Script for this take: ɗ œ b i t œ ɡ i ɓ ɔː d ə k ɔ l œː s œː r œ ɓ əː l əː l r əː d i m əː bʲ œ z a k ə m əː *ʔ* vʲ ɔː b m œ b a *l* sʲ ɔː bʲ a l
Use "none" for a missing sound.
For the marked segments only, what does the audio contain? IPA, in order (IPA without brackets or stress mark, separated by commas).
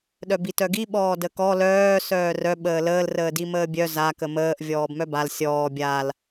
ʔ, l